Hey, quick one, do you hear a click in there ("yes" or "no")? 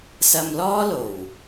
no